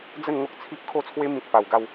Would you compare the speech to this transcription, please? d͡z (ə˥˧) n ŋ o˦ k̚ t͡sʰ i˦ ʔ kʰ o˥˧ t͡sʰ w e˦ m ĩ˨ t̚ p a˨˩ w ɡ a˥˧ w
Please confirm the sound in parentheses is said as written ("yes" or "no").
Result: yes